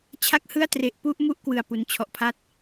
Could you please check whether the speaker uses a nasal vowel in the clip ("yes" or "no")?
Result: no